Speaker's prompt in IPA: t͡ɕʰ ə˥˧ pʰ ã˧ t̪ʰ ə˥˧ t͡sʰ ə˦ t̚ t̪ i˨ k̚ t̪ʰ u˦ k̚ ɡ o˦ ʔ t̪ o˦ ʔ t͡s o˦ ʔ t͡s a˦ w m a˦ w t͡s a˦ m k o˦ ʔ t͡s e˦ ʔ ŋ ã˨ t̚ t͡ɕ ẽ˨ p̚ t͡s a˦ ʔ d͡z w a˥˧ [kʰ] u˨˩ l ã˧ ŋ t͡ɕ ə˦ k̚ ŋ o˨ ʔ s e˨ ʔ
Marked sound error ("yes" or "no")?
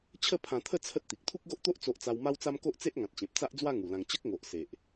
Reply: yes